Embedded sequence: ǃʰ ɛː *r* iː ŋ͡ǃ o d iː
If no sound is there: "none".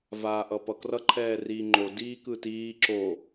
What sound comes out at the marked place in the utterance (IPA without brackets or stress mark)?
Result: r